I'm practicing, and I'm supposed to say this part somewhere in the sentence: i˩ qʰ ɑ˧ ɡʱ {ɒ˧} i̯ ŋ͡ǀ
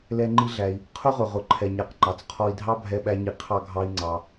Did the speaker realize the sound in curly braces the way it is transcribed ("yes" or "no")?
no